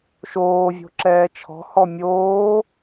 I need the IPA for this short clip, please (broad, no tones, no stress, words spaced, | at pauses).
ʃoːvʲo̤ǁɛː t͡ʃʰɔ̤hɔ mʲoː